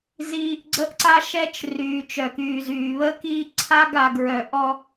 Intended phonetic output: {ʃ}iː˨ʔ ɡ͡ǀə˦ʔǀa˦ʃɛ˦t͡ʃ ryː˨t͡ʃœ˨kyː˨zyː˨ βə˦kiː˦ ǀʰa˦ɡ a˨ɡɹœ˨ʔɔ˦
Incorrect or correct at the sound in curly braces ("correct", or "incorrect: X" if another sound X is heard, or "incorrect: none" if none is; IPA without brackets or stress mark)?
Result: incorrect: z